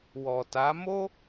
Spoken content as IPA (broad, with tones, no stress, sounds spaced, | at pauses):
w ɔ˨ t a˨˦ m o˦